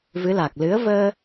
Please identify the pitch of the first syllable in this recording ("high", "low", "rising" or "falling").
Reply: rising